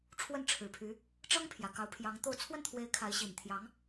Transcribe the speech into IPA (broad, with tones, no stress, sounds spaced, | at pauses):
ʈ͡ʂʰ w ə˥˩ n ʈ͡ʂʰ ɻ̩˨˩ pʰ y˧˥ | ʈ͡ʂ ɤ˥ ŋ pʰ j ä˨˩ k ɑ˧˥ ʊ̯ pʰ j ɑ˧˥ ŋ t̪ o˥˧ ʊ̯ t͡sʰ w ə˥˩ n t̪ʰ w e˧˥ ɪ̯ kʰ a˧˥ ɪ̯ ɕ i˨˩ n t̪ʰ j ɑ˧˥ ŋ